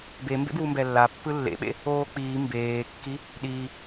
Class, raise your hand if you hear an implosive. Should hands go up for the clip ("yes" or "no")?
yes